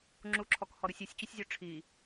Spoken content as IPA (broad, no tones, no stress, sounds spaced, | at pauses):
ŋ͡ǁ u ǁʰ ɔ k h ɔ ɾ u sʲ i sʲ t͡ɕ u sʲ zʲ u ʈ͡ʂʰ i